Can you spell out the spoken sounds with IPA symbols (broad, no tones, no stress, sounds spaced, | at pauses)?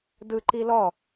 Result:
d ɯ ǃ i l ɔ